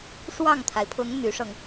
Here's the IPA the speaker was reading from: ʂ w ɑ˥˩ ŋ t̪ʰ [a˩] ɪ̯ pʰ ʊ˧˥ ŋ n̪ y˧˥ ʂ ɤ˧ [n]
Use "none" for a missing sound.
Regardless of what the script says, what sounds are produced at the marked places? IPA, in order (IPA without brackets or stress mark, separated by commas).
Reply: a˩, ŋ